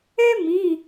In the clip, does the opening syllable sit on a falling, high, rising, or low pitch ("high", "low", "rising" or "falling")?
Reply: high